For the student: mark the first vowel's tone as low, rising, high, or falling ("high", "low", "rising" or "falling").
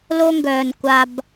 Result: high